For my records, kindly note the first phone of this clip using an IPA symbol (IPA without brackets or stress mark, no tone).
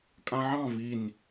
kʼ